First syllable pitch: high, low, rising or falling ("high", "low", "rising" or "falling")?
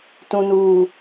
low